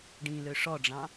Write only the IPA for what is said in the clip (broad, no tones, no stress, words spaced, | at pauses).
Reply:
ɖĩlø ʂɔɖ͡ʐɑ̃